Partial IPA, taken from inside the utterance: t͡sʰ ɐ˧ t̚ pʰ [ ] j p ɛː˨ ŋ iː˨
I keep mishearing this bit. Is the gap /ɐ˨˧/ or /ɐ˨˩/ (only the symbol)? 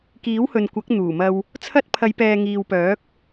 ɐ˨˧